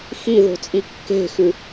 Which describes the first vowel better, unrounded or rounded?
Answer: unrounded